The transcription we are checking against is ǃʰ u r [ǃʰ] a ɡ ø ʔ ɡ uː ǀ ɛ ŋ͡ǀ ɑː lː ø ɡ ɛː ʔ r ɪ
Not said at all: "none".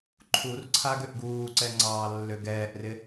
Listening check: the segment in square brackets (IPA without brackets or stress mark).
ǀʰ